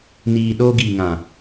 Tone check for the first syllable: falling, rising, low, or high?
low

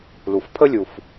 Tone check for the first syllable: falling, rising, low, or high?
low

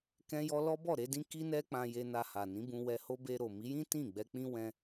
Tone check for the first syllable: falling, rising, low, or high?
high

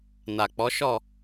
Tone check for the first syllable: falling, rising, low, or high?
low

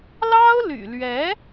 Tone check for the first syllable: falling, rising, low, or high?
high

